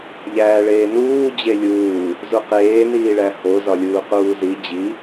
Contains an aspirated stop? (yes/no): no